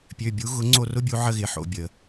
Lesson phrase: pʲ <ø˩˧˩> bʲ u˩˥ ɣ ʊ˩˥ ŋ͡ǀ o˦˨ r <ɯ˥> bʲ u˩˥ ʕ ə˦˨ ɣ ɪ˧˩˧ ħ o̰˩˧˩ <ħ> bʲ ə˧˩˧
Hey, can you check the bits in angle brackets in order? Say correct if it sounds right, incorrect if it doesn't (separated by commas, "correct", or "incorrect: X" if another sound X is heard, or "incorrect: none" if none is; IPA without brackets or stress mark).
correct, incorrect: ʊ˥, incorrect: none